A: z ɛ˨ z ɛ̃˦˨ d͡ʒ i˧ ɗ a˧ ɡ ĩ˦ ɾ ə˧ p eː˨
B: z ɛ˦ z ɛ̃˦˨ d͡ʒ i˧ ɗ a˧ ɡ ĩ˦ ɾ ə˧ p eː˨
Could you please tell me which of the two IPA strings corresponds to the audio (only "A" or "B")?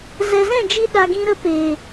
A